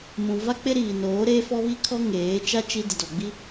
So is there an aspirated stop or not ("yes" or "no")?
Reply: yes